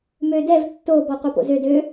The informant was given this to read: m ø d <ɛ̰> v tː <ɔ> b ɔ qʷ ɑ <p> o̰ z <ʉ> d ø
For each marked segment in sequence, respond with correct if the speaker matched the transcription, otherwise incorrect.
incorrect: ɛ, incorrect: o, correct, incorrect: ø

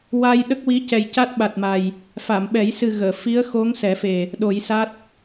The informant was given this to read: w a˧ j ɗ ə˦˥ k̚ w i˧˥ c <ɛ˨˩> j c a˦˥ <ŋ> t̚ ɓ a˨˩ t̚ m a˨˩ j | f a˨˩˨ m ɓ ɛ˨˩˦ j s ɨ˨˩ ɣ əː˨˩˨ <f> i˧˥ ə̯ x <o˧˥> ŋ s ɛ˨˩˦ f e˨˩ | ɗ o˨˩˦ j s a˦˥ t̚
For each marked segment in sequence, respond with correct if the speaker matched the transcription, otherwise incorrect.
correct, incorrect: none, correct, correct

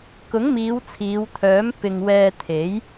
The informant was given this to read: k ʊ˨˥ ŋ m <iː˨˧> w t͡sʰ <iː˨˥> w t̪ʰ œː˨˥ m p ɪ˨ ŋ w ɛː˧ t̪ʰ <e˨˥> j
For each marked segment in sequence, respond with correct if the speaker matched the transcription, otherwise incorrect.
correct, incorrect: iː˨˧, correct

